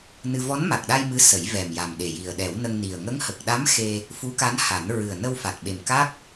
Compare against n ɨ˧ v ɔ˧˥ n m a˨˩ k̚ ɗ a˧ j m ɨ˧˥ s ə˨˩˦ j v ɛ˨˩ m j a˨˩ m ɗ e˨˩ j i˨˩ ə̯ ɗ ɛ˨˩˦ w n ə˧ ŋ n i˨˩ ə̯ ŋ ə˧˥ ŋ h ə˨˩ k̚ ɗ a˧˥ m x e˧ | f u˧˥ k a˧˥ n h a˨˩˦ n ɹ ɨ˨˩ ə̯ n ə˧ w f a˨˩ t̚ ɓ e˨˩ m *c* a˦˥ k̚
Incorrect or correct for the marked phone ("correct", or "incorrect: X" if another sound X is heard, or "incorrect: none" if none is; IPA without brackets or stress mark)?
incorrect: k